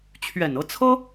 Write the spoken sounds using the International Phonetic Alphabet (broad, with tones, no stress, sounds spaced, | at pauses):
t͡ɕʰ ɥ ɛ˨˩ n ɤ˧˥ t͡sʰ ɤ˥